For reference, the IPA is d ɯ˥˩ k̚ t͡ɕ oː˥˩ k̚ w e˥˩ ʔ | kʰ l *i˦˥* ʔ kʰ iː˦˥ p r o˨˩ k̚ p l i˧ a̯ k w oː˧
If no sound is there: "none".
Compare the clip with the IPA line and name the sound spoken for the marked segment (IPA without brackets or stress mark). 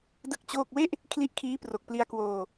i˦˥